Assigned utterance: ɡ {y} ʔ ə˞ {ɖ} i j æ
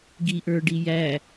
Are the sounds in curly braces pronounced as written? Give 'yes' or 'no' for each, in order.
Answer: no, yes

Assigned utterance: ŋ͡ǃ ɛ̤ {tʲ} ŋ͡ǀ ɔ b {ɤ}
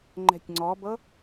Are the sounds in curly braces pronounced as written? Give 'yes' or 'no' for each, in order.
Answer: yes, yes

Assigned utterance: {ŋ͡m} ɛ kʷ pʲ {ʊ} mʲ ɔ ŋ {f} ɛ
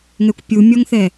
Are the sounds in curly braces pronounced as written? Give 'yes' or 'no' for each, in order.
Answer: no, no, no

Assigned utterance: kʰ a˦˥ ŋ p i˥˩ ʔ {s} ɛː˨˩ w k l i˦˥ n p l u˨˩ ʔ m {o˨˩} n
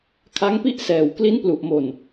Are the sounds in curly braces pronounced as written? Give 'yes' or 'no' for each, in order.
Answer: yes, yes

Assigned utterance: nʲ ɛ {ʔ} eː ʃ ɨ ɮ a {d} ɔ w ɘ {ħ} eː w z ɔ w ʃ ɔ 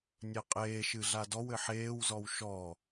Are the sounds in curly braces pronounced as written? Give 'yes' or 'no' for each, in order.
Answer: no, yes, yes

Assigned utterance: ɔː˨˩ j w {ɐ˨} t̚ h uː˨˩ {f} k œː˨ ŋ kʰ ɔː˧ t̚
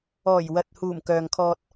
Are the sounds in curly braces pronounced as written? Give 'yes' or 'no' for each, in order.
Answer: yes, no

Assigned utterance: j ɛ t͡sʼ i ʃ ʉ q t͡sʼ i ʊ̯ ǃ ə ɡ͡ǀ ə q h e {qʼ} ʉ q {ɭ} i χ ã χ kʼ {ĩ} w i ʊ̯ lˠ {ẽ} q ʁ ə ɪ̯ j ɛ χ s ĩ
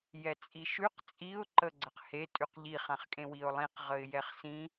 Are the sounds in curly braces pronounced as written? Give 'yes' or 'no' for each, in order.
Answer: no, no, no, no

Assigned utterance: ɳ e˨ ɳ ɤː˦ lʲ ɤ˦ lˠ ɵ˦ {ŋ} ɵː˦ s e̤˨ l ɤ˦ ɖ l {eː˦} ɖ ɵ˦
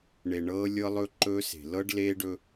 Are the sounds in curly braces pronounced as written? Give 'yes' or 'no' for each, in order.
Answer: no, yes

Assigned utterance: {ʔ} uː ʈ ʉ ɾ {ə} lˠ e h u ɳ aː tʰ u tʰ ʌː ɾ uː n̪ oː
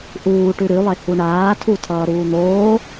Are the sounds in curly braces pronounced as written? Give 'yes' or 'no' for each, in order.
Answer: yes, no

